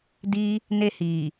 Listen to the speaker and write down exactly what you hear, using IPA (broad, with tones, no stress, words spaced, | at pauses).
di˧ | ne˧hi˨